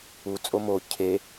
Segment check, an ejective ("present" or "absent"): present